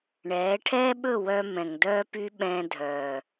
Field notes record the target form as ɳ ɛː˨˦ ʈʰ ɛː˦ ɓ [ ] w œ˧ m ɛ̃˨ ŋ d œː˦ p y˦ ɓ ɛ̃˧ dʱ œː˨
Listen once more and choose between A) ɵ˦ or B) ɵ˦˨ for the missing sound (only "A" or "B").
B